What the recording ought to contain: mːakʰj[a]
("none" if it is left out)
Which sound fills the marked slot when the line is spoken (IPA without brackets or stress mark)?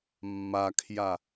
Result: a